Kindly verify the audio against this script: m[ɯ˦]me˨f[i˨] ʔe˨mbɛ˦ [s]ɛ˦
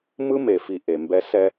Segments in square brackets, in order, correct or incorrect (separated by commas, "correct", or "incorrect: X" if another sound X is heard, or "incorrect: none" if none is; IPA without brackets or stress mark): correct, correct, correct